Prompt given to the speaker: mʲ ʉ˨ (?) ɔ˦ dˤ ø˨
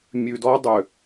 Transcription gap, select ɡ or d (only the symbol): d